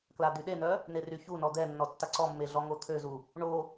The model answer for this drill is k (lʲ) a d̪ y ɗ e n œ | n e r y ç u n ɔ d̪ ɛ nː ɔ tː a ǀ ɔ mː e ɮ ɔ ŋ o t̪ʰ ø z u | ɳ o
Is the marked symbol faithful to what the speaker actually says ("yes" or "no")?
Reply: no